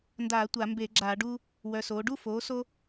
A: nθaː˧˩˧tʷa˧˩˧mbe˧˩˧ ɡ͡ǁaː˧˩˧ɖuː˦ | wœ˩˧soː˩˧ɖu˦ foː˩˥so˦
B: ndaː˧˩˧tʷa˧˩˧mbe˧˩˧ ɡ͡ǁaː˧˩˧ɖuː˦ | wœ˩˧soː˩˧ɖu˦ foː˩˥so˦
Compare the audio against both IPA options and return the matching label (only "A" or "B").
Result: B